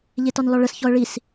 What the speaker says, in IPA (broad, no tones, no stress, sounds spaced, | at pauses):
ʎ e t ɒ n l ɒ ɭ ə s ç ɔ ə̯ ɭ i s